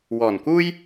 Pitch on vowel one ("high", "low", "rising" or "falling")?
low